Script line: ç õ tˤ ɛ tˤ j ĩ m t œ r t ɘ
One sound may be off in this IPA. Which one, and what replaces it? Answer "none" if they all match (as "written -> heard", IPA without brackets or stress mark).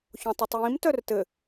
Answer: none